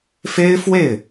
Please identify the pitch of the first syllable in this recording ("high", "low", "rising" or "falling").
high